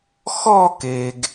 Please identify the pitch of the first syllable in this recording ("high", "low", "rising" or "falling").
falling